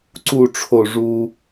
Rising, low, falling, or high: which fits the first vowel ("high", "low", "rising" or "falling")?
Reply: low